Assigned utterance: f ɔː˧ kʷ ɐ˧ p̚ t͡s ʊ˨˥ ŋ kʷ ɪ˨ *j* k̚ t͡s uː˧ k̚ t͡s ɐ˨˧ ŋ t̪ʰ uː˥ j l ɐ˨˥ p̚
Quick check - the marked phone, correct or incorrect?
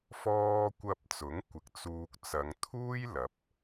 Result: incorrect: none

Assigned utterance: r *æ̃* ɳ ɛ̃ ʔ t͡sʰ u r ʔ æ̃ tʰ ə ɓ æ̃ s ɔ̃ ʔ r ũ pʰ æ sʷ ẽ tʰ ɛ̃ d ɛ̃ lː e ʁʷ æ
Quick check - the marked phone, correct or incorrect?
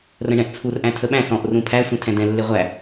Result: incorrect: ə̃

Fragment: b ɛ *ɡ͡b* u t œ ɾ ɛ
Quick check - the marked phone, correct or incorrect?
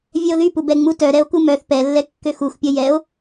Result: incorrect: ŋ͡m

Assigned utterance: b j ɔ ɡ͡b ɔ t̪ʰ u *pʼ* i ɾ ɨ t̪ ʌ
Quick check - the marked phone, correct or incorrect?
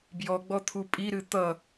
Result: correct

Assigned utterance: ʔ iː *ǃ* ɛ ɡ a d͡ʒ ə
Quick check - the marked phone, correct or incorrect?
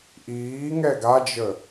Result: incorrect: ŋ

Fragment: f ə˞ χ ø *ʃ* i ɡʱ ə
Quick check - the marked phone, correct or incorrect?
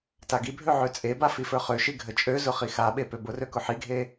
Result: correct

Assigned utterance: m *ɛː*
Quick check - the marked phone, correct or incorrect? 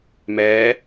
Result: correct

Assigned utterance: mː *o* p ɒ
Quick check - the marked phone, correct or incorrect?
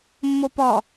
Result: correct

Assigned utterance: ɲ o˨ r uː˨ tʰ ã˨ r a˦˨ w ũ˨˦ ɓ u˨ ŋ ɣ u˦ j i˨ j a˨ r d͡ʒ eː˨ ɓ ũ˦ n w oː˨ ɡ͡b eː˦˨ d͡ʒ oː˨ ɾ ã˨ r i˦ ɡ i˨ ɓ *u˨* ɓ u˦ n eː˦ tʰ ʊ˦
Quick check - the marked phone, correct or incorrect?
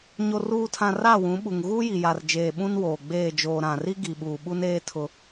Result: incorrect: uː˨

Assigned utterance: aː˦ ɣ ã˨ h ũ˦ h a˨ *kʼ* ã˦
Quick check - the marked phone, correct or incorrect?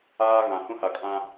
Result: correct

